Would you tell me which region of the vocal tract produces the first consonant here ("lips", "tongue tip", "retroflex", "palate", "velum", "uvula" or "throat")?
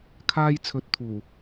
velum